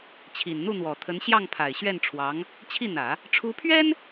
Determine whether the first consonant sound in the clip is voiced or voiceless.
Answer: voiceless